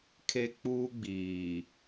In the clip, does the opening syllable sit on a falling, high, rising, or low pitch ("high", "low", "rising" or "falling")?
high